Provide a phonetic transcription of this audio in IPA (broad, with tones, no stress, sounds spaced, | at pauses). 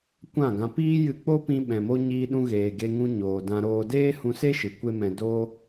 kʷ ã˦˨ ɡ ã˧ p iː˦ j ɨ˧ k͡p o˦ p ĩ˧ ɓ ɛ̃˨ m o˧ ɲ iː˧ ɗ ũ˧ ɣ eː˨ ɡ e˧ ŋ ũ˧ ɲ oː˨ d ã˧ ɾ oː˧ d eː˦ h ũ˧ s e˦ ʃ ɨ˨ kʷ e˦ m ɛ̃˧ d o˦